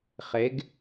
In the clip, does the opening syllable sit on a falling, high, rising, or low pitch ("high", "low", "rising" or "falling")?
rising